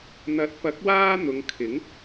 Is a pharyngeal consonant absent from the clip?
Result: yes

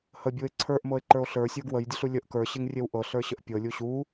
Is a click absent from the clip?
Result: no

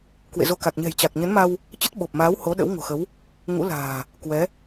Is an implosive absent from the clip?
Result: no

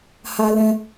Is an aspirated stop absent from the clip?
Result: yes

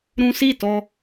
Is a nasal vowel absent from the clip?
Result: no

